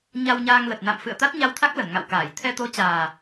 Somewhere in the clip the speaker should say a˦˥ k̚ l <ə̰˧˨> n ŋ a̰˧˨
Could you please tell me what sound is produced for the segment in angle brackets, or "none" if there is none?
ə˧˩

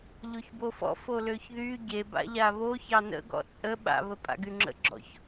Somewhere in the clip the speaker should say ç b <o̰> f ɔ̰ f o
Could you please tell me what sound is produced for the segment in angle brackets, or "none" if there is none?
o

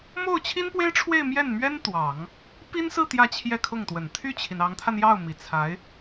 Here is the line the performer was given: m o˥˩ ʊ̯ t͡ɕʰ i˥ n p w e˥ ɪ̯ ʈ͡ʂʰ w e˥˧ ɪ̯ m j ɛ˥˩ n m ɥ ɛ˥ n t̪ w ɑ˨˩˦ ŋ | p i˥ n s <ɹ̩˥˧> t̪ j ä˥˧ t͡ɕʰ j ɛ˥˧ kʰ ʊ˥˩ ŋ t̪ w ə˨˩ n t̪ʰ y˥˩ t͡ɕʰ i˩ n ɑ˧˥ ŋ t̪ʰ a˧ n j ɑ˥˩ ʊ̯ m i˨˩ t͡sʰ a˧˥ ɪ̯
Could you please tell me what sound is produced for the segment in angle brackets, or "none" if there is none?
ɹ̩˥˧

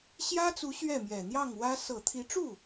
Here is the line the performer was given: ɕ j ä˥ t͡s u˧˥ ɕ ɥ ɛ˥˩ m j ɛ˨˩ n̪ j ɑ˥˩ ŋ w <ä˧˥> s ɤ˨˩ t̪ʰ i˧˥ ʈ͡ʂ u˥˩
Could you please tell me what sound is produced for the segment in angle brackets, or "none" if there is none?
ä˥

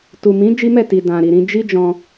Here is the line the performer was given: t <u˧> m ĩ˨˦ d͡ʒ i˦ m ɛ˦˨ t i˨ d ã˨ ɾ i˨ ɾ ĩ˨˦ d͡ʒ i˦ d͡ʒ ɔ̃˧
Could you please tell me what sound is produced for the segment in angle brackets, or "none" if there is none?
u˨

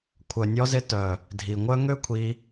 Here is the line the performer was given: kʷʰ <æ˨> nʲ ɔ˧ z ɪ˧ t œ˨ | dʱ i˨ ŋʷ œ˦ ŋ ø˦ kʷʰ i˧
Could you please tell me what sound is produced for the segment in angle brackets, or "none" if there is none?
œ˨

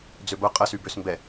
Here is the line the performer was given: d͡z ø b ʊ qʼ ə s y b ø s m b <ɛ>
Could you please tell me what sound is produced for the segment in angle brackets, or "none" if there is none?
ɛ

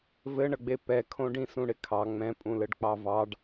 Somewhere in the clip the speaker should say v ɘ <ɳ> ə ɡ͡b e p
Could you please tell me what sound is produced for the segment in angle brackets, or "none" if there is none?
ɳ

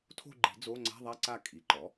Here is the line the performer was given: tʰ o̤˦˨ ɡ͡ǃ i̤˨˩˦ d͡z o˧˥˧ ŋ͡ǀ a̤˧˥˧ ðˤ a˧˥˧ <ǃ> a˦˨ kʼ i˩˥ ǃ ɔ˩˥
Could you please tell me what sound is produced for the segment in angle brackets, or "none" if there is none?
ǀ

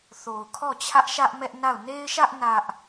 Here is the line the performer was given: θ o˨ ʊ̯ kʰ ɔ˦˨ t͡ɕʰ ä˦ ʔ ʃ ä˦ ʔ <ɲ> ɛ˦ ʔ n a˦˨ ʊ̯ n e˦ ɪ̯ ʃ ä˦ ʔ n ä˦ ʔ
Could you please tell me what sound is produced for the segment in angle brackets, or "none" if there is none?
m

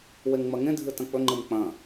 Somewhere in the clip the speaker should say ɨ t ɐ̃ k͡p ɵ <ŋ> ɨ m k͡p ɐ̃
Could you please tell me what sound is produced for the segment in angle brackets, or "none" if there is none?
ŋ͡ǃ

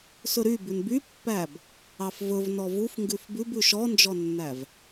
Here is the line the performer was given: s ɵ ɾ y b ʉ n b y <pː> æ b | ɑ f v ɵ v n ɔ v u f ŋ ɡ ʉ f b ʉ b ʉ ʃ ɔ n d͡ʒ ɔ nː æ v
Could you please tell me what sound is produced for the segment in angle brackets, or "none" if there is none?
pː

